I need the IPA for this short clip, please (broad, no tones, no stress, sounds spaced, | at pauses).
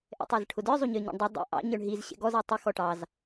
ʔ ɛ̰ tˤ æ z ʈʰ ʊ d ə˞ zˤ u ɲ ə˞ ɲ ɔ̰ ɳ dˤ ʌ dˤ ɛ̰ ʔ ɑ̰ ɲ ə˞ ɳ ɦ i z ɕ ɛ̰ ɡ ɔ z æ tˤ ɪ x ɔ ʈ ɑ z